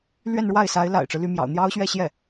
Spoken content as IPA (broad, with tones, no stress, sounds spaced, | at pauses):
l ɥ ɛ˥˧ n ɻ w a˥˩ ɪ̯ s a˧˥ ɪ̯ l a̰˨˩ ɪ̯ ʈ͡ʂ ɻ̩˦ l y˧˥ m j ɑ̰˨˩ ʊ̯ n̪ j ɑ˥ ʊ̯ ɕ ɥ ɛ˥˧ ɕ j ɛ˥˩